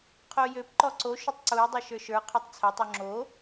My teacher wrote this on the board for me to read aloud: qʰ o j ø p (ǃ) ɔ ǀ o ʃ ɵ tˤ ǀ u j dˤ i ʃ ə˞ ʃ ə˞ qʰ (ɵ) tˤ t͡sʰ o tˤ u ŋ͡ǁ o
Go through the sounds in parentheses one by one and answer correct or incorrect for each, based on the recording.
correct, incorrect: ø

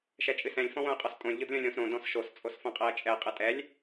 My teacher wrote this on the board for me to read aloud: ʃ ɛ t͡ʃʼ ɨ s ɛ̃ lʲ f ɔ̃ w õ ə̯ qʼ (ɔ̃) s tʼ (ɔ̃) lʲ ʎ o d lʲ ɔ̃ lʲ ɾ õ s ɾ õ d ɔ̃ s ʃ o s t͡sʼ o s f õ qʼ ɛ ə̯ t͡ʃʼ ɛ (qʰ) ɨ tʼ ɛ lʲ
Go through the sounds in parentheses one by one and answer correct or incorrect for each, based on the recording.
incorrect: ɔ, incorrect: õ, incorrect: qʼ

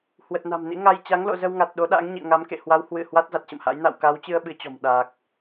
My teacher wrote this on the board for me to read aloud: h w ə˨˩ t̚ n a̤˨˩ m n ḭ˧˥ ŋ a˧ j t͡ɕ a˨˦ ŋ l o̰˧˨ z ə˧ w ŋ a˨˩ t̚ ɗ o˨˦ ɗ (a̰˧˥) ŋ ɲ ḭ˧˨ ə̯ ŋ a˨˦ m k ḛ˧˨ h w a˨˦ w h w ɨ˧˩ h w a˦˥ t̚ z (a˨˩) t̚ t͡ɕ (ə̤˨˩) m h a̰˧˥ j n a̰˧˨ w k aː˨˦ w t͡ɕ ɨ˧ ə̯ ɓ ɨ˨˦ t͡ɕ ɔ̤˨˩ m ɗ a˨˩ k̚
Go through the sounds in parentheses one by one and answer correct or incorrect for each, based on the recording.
correct, correct, incorrect: ə̰˧˨

